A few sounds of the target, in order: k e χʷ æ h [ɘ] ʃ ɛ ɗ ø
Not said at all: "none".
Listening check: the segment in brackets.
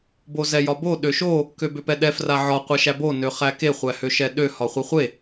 ø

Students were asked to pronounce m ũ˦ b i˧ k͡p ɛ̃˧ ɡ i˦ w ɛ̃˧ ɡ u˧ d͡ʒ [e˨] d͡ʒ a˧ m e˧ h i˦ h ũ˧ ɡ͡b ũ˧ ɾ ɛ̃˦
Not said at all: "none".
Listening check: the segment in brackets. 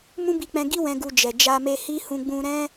ɛ˨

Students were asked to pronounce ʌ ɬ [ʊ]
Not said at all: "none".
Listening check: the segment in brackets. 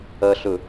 ʊ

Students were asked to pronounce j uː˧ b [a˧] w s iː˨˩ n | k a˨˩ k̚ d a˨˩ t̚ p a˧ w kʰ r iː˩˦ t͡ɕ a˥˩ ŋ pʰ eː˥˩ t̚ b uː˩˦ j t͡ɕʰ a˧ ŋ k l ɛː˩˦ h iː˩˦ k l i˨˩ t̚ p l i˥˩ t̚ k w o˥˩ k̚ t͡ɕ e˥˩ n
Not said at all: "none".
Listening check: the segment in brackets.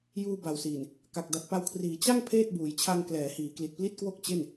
a˨˩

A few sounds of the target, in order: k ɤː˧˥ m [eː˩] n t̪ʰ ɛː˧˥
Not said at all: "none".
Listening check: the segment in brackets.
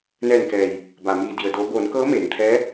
eː˩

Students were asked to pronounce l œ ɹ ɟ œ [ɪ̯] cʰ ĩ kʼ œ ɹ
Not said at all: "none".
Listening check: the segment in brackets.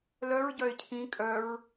ɪ̯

